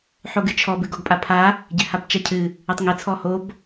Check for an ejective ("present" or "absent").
present